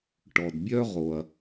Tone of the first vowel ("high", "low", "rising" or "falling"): low